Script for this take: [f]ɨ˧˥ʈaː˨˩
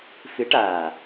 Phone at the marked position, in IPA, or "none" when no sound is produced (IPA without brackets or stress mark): f